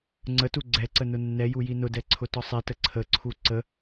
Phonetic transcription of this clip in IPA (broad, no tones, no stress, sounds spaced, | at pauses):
ŋ͡ǀ ə t u ɡ͡ǀ ɛ ǀ ə n ʊ nː ɛ j u j i n ʊ d ɛ ǀʰ ʊ t ɒ sˤ i t ə ǀʰ ə ǀʰ u ǀ ə